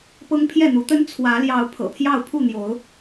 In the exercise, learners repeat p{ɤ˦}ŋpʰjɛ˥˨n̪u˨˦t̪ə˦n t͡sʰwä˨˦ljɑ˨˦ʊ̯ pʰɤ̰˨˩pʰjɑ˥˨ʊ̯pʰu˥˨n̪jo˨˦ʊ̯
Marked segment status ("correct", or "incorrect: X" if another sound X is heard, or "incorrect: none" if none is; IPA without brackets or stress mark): correct